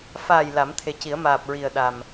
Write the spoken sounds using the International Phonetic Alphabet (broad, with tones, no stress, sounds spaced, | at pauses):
f aː˨˩ j l a˨˩˦ m t̪ʰ e˨˩ c i˨˩˦ ə̯ m aː˨˩ p̚ ɹ i˨˩ ə̯ ɗ a˨˩ m